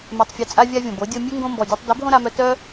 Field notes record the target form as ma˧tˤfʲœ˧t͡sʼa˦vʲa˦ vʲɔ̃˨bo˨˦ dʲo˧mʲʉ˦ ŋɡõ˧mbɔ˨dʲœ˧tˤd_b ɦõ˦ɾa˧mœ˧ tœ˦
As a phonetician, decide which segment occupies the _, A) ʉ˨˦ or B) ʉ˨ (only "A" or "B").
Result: A